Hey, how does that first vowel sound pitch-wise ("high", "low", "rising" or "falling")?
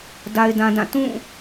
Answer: high